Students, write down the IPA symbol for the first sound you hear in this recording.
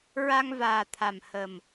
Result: ɹ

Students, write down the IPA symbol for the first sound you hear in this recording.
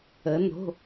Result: ə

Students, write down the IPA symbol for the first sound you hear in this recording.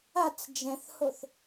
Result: a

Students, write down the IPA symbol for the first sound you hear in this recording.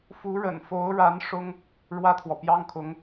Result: f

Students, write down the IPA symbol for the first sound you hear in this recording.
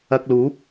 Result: ɐ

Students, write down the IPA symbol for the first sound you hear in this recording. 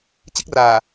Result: t͡ɕ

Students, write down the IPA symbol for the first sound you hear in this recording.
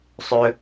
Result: sˤ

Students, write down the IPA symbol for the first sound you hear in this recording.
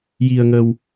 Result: j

